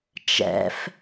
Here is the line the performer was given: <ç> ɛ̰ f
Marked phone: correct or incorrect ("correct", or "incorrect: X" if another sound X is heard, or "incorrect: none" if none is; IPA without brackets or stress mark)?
incorrect: t͡ʃ